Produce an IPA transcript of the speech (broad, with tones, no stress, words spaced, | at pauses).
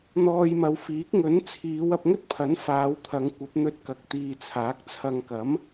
n̪ɔː˧jmɐ˨˧wfiː˨˥k̚ ŋɵ˨˥nt͡sʰiː˨˧w ɐ˧p̚ŋɵ˥t̚ pʰɐ˨˥nfaː˨˧w t̪ʰɐ˨˧ŋkʷɐ˨˥p̚n̪ɵ˧t̚ kɐ˨k̚t̪iː˨ t͡sʰaː˨˥k̚t͡sʰɐ˧ŋ kɐ˨˥m